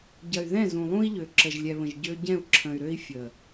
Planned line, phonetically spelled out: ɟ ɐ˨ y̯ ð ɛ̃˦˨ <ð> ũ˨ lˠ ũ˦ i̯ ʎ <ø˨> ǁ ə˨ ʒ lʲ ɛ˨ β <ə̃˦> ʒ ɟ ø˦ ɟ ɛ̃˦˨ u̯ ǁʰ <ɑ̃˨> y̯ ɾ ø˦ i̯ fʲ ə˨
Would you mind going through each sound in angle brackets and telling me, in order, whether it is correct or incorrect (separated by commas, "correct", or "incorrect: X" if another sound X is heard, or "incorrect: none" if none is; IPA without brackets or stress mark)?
incorrect: z, correct, incorrect: ə̃˨, incorrect: ə̃˨